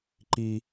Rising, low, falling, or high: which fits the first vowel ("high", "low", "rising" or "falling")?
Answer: high